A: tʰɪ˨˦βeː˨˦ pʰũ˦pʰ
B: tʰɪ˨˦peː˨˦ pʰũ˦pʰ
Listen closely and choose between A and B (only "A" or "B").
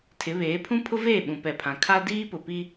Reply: A